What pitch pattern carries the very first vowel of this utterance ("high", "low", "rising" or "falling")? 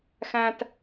low